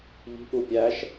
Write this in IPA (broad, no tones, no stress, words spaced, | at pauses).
ʎi̤ʔu pʲæʃ